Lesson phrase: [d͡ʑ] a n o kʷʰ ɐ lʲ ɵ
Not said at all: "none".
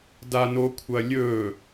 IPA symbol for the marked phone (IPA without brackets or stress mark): d